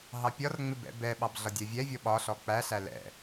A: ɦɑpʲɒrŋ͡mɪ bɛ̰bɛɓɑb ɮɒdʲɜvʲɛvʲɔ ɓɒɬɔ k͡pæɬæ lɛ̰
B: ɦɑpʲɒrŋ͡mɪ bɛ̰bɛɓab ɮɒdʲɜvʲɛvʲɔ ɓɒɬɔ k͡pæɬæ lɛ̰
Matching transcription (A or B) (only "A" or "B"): A